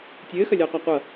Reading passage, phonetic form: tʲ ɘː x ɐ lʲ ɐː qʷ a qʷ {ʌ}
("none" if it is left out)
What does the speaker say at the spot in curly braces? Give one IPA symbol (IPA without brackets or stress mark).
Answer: ʌ